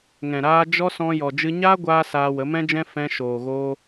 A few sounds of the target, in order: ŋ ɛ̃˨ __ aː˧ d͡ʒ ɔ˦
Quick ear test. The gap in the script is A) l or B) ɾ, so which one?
B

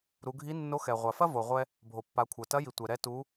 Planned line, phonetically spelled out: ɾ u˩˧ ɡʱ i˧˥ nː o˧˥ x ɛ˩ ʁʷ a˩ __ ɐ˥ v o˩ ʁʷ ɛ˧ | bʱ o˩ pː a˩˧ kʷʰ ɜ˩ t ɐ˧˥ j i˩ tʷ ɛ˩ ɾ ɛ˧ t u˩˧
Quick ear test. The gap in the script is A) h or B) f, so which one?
B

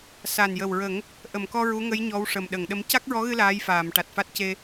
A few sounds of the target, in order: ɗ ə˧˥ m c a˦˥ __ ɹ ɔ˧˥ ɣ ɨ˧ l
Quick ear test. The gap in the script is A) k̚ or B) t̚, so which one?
A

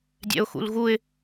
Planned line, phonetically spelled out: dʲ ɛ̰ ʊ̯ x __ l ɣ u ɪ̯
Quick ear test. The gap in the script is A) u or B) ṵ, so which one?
B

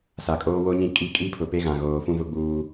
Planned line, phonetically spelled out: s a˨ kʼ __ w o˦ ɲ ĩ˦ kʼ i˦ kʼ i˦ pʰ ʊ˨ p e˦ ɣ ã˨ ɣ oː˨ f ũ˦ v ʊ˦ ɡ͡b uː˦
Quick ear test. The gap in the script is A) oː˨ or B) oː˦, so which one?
B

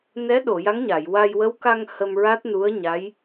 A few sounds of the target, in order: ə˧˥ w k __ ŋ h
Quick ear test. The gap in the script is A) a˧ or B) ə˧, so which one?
A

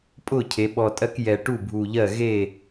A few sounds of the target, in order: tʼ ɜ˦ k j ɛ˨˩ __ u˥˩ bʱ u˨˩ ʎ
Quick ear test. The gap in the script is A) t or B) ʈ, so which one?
B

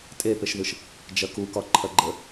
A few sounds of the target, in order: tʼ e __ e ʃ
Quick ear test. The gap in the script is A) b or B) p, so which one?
B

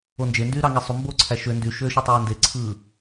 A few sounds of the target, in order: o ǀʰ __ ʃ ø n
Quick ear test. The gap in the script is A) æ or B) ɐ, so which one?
A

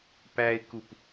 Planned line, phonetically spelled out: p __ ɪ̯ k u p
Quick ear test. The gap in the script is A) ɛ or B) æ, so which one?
B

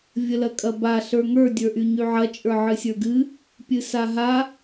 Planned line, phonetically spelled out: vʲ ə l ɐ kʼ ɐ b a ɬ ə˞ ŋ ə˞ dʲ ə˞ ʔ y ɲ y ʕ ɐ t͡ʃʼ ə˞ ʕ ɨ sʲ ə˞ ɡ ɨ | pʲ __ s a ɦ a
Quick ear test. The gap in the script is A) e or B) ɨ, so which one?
B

